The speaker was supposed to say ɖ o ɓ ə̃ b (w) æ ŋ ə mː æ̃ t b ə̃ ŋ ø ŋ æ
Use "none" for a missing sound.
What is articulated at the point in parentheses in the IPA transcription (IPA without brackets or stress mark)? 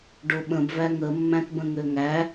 v